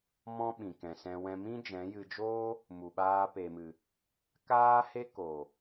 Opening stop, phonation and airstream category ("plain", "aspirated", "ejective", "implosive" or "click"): implosive